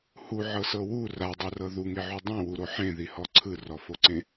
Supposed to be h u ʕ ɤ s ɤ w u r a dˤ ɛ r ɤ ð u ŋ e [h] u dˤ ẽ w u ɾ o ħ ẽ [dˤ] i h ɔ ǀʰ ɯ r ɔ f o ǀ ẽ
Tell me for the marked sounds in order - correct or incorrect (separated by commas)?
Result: incorrect, incorrect